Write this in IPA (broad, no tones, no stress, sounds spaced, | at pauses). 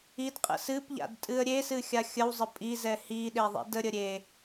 i d qʼ ə̰ s ɨ p ʎ a̰ d tʼ ɨ ə̯ ɾʲ e s ɨ xʲ a xʲ ə w zˤ ə pʼ i z ɛ h i ɗ e ðˤ ḭ d ə ɾʲ ə ɾʲ e